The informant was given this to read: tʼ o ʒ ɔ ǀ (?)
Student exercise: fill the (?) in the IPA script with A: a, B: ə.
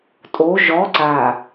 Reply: A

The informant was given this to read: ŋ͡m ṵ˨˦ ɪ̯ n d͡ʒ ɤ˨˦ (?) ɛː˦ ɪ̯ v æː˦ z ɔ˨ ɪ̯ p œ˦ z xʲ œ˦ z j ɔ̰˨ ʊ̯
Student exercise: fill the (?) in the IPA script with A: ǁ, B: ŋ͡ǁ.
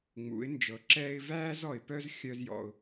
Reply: A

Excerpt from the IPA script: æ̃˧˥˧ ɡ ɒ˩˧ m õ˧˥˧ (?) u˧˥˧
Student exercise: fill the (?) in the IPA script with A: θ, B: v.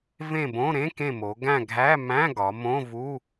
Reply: B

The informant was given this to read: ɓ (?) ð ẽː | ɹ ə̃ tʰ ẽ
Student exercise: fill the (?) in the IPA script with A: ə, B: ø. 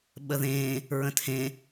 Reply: A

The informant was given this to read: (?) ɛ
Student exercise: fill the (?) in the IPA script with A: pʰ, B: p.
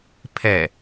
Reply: A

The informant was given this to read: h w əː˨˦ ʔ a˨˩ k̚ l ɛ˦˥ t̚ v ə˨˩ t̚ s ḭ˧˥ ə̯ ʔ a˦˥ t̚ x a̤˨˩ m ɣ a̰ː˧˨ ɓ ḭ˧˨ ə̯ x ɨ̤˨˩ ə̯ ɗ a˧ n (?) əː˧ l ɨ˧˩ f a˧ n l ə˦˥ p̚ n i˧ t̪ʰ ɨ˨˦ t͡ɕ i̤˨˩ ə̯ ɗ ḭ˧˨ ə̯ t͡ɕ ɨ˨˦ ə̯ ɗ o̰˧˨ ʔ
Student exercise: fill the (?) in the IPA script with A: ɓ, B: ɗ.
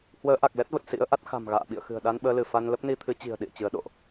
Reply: A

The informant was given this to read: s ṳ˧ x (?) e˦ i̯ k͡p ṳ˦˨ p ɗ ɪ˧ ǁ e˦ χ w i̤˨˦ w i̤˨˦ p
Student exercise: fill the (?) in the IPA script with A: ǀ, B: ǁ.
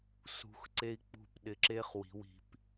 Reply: A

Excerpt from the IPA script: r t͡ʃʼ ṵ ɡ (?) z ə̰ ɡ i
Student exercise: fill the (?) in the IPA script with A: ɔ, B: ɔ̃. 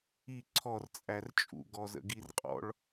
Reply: A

